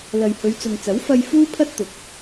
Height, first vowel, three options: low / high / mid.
low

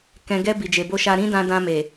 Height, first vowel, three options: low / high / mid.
mid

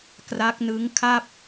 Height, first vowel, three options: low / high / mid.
low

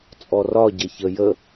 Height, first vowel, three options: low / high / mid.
mid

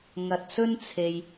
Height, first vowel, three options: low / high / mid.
low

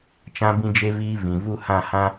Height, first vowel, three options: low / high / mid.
low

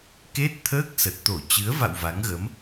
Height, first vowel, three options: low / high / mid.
mid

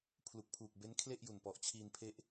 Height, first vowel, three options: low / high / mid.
high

